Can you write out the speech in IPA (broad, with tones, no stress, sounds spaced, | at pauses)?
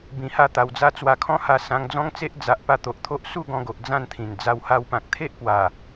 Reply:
b ĩ˧ h a˥˧ t̪ a˧ w d͡z a˦ t͡s w a˧ kʰ ɔ̃˦ h a˧ s ã˧ ŋ d͡z ɔ̃˦ ŋ t͡s e˦ ʔ d͡z a˨ ʔ p a˧ t̪ o˨ ʔ t̪ʰ o˦ ʔ s u˥˧ ɡ ɔ̃˧ ɡ o˨ ʔ d͡z ã˥˧ n t̪ʰ ĩ˨˩ n d͡z a˧ w h a˧ w p ã˨ k̚ t̪ʰ e˦ ʔ p w a˨˩